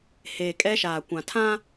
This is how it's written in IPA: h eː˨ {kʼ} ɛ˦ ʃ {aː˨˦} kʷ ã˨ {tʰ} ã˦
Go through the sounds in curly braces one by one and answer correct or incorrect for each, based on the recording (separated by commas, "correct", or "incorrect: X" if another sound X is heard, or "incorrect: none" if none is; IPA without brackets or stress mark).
correct, incorrect: aː˨, correct